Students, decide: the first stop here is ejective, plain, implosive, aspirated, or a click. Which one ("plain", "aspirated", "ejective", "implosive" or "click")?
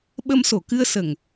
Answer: implosive